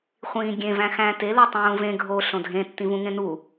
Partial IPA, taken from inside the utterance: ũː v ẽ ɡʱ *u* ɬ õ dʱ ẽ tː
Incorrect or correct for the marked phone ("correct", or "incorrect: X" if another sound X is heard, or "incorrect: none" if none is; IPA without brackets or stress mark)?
incorrect: o